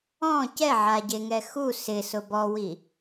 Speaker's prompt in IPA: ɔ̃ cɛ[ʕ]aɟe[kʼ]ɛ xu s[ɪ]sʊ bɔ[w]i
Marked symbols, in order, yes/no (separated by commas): yes, no, yes, yes